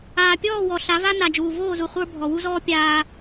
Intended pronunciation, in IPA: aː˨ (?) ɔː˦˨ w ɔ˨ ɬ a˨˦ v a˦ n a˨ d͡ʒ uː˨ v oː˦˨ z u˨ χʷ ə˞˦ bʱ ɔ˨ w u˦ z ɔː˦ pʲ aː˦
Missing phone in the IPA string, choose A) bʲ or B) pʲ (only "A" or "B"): B